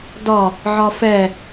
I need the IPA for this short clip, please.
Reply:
d ɒ | ʕ ɒ f ɛ

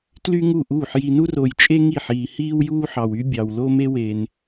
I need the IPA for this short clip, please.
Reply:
t l y˥ ŋ u˥˩ ʔ uː˥˩ ħ j i˧ n u˥ r o˧ j t͡ʃʼ e˥ ŋ i˥˩ ħ iː˧ h iː˥ w j uː˥ ħ ɑ˧ w y˥ bʲ ɑ˧ w l o˥ m e˥ w e˧ n

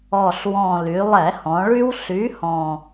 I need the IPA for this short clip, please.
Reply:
ɔ˨˩ ɬ w ɔ̃˨˩ l y˩˧ lˠ ɛ˧˩˧ h ɔ̃˩˧ ɭ y˦ w ɬ y˨˥ h ɔ̃˨˩

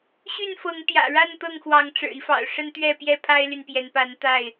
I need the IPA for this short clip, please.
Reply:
ɕ y˥˨ n f ɤ˨˦ ŋ t̪ j ä̰˨˩ ɻ a˥˨ n t̪ ɤ˥˨ ŋ x w ɑ˨˦ ŋ ʈ͡ʂ ɻ̩˨˩ i˦ f ɑ̰˨˩ ʊ̯ ʂ ə˦ n t̪ ɥ ɛ˥˨ p j ɛ˥˨ pʰ a˦ ɪ̯ l y˨ n p j ɛ˨˦ n p a˨˦ n t̪ a˥˨ ɪ̯

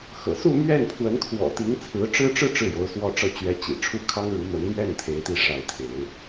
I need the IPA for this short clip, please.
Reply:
x ɤ̰˨˩ s u˥˧ m ɥ ɛ˥˩ n pʰ w ə˧˥ n kʰ w ɔ̰˨˩ t̪ i˧˥ ŋ t͡sʰ ɹ̩˧˥ ʈ͡ʂ ɻ̩˥ ʈ͡ʂ ɻ̩˥ ʈ͡ʂ ɻ̩˥˩ j o˧˥ ʊ̯ s w ɔ˥˧ ʈ͡ʂ ɤ˥˩ t͡ɕ ɥ ɛ˧˥ t͡ɕ ḭ˨˩ ʈ͡ʂʰ u˥˩ kʰ ɑ˥ ŋ ɻ u˧˥ m ə˧˥ n m ɥ ɛ˥˩ n t̪ʰ e˧˥ ɪ̯ t̪ i˥˧ ʂ a˥˩ ɪ̯ t̪ʰ e˧˥ ɪ̯

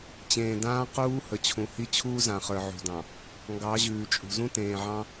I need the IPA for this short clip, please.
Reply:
t͡ɕ ẽː˨ d ãː˦ q uː˦ h ə˨ t͡ɕʰ ũ˨ h i˦ t͡ɕʰ uː˦ z ã˨ χ ə˞˨ ʕ ṳ˨ d ɑ̃˨ | ŋ ɡ ɑ˨˦ ʑ ʉː˨ t͡ʃʼ ṳ˨ z ũ˦ t ẽː˨ ʕ ɑ̃˦

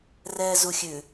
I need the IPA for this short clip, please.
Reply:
r ɛː z u xʲ ʉ

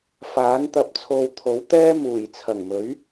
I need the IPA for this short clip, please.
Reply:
f aː˨˥ n t̪ ɐ˧ p̚ t͡sʰ o˧ w t̪ʰ o˨˥ w t̪ ɛː˥ m uː˨˩ j t͡sʰ ɐ˨˩ ŋ m ɵ˨˥ ɥ

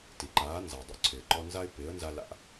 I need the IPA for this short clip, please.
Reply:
t i˩ ǃ aː˩˥ n z a˩ dˤ ṵ˧ ǀʰ ɪː˩ ǃ ɔ˧ n z a˥ ɪ̯ p ɪː˩˥ ə̯ n z a˧ l a̰˧

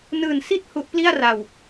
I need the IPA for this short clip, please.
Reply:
n ɯː˨˩ n s i˥˩ t̚ h u˦˥ ʔ p l i˥˩ a̯ r a˨˩ w

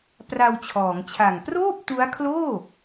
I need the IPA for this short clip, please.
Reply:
p r a˧ w t͡ɕʰ ɔː˩˦ ŋ t͡ɕʰ a˨˩ ŋ p r oː˥˩ p̚ t u˦˥ a̯ kʰ l oː˥˩

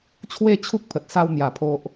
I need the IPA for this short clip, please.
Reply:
t͡ɕʰ w e˥˧ t͡ɕʰ u˦ k̚ pʰ ə˨ t̚ s a˧ w n̪ j a˨˩ pʰ o˨ ʔ

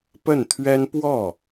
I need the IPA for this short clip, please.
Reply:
p ə˥˩ n t̪ʰ ɥ ɛ˥ n p w ɔ˥˩

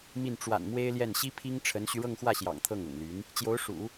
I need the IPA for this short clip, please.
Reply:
m i˥˩ n ʈ͡ʂ w a̰˨˩ n m w e˥ ɪ̯ l j ɛ˥˩ n ɕ i˥ pʰ i˥ ŋ ʈ͡ʂʰ ə˧˥ n ɕ y˧ ɻ ɤ˥˧ ŋ x w ä˥˩ ɕ j ɑ̰˨˩ ŋ t̪ʰ ɤ˥˩ ŋ ʊ̰˨˩ ŋ l y˧˥ n | t͡ɕ j o˧˥ ʊ̯ ʂ ṵ˨˩˦

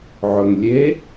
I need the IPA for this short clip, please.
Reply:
ʕ ɵ ŋ lʲ e

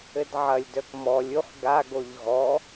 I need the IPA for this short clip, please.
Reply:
ɘ d ʕ ɐ lʲ d œ k m ɔ lʲ u χ ɡ a ɡ o ʎ ɣ ɔ

